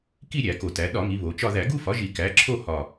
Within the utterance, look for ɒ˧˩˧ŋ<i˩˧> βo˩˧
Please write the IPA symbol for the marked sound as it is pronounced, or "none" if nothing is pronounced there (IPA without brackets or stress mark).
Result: i˩˧